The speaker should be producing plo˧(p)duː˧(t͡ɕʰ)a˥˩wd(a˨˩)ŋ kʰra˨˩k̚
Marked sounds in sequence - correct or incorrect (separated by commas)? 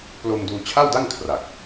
incorrect, correct, incorrect